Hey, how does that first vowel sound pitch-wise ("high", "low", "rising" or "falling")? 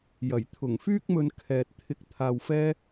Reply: low